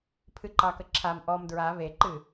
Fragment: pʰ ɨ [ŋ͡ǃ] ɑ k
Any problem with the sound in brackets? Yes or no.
yes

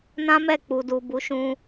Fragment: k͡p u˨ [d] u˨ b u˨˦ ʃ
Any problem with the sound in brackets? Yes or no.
no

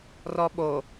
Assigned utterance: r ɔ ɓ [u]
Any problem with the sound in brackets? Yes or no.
yes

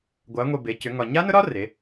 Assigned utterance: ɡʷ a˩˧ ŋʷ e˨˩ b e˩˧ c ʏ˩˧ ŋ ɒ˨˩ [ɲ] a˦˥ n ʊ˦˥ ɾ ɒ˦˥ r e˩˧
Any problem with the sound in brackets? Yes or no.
no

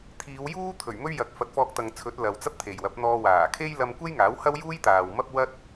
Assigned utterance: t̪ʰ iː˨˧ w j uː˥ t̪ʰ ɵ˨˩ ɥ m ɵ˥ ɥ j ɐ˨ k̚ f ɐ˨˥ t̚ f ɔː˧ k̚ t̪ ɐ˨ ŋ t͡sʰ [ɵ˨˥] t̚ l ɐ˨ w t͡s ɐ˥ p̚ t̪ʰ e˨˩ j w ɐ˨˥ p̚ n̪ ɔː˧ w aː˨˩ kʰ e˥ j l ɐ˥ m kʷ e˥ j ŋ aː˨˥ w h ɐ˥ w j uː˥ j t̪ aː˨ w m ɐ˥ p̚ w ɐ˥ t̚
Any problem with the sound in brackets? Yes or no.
no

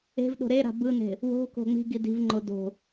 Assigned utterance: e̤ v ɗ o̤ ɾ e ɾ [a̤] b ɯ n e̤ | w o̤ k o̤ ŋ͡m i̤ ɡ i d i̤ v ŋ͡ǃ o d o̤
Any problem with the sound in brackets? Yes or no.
no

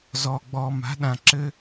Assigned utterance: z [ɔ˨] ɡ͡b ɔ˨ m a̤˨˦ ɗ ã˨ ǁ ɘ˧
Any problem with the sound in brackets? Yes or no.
no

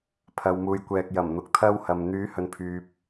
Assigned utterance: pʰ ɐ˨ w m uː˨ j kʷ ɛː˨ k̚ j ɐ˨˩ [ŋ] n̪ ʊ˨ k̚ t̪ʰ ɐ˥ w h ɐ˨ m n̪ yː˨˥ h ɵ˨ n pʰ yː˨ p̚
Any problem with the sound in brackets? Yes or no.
yes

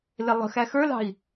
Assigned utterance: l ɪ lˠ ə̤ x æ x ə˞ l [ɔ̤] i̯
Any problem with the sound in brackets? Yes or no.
yes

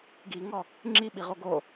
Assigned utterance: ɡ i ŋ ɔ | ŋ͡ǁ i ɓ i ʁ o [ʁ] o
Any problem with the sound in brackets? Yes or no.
yes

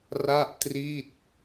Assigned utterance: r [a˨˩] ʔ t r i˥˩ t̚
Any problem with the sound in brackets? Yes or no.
yes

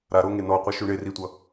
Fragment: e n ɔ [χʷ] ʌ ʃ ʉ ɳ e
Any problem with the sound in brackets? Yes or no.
yes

